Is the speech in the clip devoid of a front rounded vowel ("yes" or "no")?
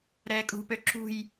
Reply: no